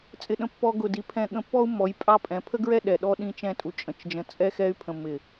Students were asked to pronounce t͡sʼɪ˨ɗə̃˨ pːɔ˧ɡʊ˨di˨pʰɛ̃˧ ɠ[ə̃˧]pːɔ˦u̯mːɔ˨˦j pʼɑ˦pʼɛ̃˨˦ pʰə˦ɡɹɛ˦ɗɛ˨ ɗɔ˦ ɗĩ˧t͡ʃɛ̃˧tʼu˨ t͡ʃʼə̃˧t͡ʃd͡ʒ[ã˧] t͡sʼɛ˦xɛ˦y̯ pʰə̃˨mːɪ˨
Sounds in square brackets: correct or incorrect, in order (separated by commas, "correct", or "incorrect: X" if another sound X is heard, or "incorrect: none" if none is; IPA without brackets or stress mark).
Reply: correct, incorrect: ə̃˧